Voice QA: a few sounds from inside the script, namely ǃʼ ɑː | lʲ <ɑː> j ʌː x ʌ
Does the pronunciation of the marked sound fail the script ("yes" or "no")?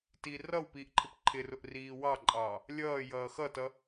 yes